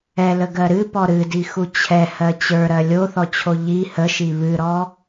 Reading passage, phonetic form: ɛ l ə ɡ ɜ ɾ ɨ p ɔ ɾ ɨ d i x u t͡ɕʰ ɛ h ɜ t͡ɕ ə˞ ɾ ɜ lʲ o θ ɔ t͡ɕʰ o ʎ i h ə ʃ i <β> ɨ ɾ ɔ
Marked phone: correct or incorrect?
correct